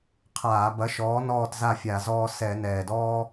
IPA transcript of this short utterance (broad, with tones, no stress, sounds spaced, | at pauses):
qʰ aː˧˩˧ b ɐ˨˥ ʃ ɔː˨˥ n ɔː˥˨ t z a˥˨ fʲ a˧˩˧ z ɔː˦ s ɛ˧˩˧ n ɛː˨˩ d ɔː˦